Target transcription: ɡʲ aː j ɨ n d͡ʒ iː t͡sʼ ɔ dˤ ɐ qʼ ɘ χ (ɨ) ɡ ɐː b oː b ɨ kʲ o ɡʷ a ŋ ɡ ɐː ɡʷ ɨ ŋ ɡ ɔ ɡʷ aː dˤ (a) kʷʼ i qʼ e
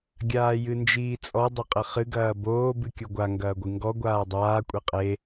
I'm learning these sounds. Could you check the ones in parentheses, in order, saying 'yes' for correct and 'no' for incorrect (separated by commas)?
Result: yes, no